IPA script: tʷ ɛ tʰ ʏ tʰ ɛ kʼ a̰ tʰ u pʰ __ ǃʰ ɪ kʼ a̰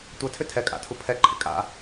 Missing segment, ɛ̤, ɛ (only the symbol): ɛ